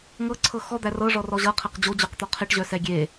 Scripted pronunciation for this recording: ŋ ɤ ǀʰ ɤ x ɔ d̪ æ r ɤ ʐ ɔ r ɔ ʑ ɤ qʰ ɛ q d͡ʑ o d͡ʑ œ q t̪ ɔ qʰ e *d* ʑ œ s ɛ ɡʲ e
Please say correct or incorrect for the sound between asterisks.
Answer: incorrect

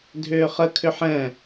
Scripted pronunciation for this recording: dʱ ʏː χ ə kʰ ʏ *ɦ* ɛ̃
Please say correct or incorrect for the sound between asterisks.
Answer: incorrect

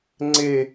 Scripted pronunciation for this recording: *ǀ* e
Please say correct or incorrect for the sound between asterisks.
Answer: incorrect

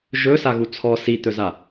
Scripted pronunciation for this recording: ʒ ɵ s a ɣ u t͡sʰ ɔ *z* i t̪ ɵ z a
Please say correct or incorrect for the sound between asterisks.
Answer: incorrect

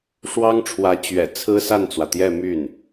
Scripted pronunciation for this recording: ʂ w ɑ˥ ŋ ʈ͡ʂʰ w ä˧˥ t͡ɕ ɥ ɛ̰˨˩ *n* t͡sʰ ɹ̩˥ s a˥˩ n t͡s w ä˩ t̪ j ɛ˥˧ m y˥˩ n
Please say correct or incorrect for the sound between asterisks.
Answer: incorrect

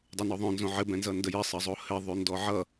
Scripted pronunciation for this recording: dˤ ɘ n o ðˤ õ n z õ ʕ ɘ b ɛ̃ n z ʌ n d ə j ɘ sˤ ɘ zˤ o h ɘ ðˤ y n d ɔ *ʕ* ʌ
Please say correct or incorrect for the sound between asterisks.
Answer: correct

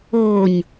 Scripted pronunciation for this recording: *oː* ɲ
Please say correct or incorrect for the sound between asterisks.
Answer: correct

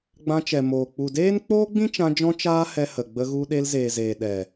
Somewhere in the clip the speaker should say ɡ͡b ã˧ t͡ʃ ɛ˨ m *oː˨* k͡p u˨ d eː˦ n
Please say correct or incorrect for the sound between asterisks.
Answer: correct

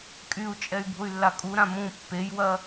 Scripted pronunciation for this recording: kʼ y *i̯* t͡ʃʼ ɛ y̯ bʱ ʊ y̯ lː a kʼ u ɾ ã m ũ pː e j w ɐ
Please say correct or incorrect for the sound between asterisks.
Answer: incorrect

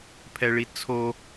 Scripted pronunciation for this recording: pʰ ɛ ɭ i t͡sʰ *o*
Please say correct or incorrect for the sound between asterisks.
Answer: correct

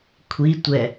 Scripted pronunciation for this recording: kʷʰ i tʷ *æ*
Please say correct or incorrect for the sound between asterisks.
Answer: incorrect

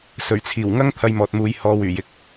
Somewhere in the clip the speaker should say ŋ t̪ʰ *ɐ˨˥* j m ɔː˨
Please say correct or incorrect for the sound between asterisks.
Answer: incorrect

